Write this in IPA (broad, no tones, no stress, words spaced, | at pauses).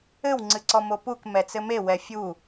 ɘwŋ͡ǀɨǀɔ mopuk mɛt͡sɘme wɛfʲu